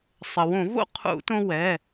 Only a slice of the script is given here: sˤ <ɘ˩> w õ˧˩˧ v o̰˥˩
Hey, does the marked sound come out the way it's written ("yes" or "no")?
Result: yes